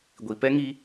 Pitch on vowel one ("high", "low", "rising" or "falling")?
low